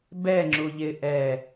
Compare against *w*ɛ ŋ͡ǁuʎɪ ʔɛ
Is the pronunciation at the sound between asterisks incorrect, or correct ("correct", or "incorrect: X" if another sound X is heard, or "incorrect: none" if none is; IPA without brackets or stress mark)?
incorrect: b